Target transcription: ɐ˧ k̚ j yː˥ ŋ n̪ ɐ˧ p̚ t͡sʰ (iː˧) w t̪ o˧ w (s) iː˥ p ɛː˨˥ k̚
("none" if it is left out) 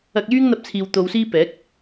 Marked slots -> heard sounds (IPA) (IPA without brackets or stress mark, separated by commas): iː˨, s